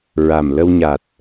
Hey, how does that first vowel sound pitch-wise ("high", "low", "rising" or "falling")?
low